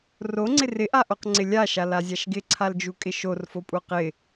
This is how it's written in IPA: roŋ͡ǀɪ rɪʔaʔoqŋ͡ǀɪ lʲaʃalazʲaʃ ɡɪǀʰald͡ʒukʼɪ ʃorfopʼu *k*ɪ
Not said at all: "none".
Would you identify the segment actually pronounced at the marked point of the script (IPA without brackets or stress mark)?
q